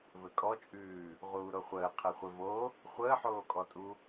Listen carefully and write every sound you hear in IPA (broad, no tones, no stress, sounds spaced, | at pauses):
v ɘ kʼ ɔ t͡ʃʼ ʉː | ʁ uː ɾ o χʷ əː qʰ ɘ χʷ ɘ v o | χʷ əː ħ oː kʼ ɔ tʼ u